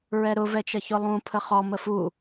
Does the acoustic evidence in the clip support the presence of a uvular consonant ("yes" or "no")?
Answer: yes